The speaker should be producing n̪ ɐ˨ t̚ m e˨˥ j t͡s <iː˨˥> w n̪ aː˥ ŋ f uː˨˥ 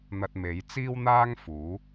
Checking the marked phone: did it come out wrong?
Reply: yes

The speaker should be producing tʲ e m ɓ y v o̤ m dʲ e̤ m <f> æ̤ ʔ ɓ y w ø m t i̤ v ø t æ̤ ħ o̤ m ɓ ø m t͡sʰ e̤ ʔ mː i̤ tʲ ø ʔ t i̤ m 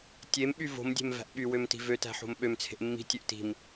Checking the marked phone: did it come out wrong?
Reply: yes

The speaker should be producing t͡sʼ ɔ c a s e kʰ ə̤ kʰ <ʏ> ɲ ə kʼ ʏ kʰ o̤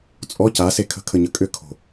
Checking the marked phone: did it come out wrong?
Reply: yes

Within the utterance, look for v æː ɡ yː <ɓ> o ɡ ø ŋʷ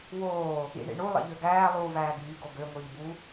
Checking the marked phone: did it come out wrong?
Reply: yes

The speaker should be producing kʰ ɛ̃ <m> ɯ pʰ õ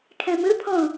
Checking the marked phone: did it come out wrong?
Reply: no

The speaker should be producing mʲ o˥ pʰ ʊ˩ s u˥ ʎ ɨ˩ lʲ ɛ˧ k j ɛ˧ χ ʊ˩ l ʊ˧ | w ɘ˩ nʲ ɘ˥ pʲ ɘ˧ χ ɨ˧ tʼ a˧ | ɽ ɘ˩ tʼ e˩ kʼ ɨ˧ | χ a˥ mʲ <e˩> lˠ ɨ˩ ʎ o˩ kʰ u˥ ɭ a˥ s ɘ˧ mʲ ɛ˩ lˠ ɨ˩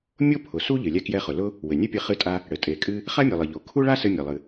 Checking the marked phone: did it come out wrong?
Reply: yes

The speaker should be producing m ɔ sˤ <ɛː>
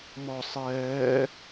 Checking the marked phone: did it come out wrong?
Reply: no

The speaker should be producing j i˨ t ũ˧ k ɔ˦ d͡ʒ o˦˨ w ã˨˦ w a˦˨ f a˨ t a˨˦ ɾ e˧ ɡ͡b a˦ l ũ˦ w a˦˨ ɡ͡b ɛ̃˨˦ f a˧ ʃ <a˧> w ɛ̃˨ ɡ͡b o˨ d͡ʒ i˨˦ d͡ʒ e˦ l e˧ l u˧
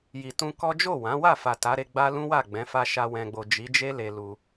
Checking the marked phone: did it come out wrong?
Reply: no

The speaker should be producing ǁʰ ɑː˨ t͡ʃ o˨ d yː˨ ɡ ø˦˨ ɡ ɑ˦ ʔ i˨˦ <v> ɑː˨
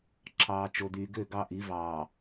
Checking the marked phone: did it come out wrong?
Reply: no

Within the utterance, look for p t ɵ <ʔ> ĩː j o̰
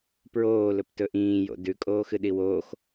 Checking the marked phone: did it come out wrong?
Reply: no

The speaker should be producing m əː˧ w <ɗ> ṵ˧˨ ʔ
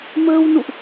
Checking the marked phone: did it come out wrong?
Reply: yes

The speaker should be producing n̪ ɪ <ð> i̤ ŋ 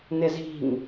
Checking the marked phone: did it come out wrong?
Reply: yes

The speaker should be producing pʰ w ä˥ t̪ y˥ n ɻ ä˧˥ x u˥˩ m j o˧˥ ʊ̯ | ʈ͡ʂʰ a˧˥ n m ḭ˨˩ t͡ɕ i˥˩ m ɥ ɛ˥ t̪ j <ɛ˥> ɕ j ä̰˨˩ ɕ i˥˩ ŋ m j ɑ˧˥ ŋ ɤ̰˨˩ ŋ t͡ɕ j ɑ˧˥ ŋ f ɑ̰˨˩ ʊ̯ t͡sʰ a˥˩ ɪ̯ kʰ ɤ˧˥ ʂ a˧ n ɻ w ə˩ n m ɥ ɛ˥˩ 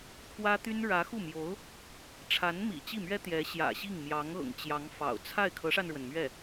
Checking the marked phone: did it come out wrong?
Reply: yes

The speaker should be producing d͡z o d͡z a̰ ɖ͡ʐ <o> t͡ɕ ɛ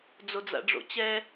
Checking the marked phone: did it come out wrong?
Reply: yes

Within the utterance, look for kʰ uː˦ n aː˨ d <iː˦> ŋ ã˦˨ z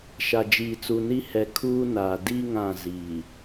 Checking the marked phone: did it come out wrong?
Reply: yes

